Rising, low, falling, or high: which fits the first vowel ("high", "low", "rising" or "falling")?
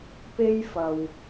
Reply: high